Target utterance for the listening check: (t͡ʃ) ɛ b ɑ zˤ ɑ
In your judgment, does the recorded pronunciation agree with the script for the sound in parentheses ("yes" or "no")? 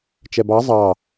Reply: yes